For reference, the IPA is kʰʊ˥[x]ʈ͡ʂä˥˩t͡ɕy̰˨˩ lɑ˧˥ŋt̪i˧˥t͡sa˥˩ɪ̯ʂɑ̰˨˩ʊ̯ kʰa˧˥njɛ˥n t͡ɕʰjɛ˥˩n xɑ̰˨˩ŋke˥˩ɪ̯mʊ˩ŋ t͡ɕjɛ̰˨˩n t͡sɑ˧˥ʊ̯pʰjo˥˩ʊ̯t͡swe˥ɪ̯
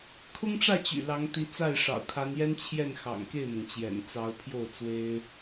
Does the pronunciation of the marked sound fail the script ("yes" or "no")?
yes